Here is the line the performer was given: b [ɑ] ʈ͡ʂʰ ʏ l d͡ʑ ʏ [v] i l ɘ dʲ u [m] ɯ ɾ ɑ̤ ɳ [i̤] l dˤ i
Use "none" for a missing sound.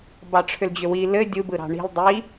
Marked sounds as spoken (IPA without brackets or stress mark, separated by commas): ɑ, w, b, i̤